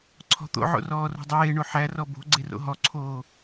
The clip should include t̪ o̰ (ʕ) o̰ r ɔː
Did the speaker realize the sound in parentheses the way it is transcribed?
yes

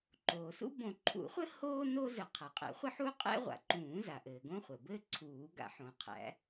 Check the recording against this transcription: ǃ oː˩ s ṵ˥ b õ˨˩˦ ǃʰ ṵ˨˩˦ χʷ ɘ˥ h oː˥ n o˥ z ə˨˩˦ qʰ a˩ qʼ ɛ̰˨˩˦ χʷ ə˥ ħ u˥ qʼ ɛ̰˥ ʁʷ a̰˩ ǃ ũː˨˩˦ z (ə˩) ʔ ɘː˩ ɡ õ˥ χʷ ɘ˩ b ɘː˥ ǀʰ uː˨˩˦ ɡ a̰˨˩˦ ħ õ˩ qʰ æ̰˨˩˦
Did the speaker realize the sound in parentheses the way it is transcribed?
no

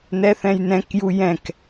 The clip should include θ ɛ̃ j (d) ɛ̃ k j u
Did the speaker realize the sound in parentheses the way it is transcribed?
no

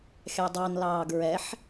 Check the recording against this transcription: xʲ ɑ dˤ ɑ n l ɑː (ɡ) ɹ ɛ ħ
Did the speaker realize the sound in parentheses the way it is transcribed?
yes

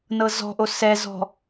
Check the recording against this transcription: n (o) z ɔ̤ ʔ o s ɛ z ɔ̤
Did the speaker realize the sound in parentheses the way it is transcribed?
no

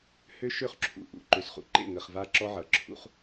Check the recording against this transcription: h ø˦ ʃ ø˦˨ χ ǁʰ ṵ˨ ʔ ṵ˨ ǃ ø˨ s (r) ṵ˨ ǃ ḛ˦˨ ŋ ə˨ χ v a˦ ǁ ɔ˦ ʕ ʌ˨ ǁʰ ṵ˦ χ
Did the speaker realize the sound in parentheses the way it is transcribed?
no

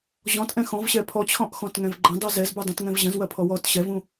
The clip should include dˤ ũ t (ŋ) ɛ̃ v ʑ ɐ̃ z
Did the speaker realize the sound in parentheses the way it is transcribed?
yes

